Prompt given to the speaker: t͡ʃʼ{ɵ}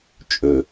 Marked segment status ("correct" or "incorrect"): correct